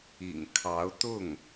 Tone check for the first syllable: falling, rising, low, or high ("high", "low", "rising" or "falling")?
low